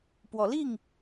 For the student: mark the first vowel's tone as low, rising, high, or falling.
rising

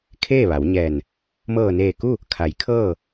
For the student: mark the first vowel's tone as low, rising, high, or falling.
falling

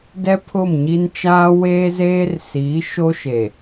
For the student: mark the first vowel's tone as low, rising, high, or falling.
high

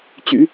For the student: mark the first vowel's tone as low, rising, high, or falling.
low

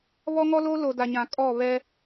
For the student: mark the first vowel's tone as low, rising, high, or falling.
high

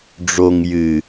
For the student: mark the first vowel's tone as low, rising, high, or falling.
low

